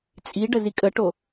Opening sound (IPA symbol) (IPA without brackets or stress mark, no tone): t͡sʼ